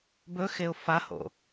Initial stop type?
plain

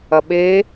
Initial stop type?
implosive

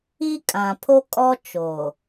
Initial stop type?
ejective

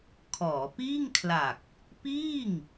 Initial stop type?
aspirated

